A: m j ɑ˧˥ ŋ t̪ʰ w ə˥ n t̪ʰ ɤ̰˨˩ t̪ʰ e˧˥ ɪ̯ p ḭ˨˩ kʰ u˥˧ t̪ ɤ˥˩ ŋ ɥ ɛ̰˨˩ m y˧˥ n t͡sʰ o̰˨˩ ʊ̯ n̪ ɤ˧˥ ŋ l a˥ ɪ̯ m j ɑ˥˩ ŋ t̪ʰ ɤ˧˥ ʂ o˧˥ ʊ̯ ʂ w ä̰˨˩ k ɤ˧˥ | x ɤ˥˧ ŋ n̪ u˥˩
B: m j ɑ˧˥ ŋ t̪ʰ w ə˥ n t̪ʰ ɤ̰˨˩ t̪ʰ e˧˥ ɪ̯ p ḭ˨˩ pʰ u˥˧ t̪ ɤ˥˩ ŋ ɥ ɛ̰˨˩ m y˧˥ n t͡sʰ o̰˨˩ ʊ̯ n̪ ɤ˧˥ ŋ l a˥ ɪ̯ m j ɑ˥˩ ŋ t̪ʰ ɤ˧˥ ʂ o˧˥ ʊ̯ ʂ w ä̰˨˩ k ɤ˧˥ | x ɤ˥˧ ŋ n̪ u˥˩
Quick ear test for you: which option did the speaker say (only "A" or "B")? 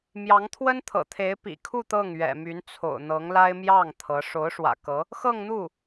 A